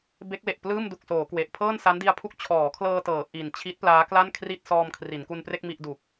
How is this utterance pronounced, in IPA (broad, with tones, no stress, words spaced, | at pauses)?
be˦˥k̚we˨˩ʔ plɯː˥˩mdu˨˩k̚soː˩˦ kwe˨˩ʔ pʰɤː˥˩nsa˦˥ndi˦˥a̯pʰu˦˥k̚ t͡ɕʰɔː˩˦kʰlɤː˧tɤː˩˦ ʔi˨˩n t͡ɕʰi˦˥t̚ plaː˦˥ kla˥˩nkʰri˥˩t̚ sɔː˧mkʰri˩˦nku˧npre˥˩k̚ mi˥˩ʔdu˨˩k̚